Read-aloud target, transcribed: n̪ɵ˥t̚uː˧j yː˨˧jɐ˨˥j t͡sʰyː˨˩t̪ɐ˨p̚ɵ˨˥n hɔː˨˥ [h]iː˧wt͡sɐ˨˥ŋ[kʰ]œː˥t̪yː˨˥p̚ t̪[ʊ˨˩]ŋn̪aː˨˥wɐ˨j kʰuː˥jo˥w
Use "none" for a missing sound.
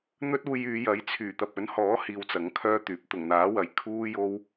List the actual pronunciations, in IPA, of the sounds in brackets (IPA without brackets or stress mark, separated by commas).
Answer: h, kʰ, ʊ˨˩